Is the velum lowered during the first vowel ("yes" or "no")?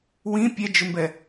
yes